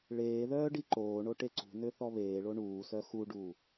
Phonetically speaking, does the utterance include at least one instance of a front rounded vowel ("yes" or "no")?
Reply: yes